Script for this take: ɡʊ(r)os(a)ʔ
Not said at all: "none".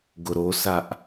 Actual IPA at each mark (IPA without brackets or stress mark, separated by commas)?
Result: ɾ, a